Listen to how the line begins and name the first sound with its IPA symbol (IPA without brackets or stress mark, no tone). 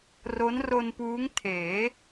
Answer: r